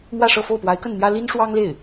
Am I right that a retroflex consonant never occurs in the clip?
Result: no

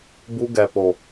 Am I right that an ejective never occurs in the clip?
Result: yes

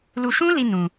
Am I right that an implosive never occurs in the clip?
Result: yes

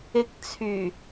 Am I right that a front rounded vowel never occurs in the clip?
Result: no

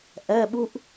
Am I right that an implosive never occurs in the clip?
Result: no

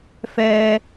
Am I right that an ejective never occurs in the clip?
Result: yes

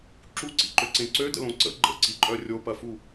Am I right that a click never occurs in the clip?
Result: no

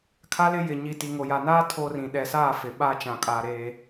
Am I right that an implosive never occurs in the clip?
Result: no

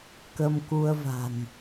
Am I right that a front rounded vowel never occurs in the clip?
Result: yes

